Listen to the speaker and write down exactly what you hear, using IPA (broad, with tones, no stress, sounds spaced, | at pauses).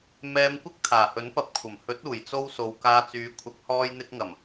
m ɛː˧ m kʷ ɪ˥ k̚ t̪ʰ aː˨˩ h ɵ˨˥ n p ɐ˧ p̚ kʷʰ ɐ˨˩ m h ɵ˨˥ t̚ uː˨˩ j t͡s o˧ w s o˨˧ w k aː˧ t͡s yː˨˧ kʷʰ ɐ˨˥ k̚ h ɔː˧ j n̪ ɪ˧ k̚ ŋ ɐ˨˩ m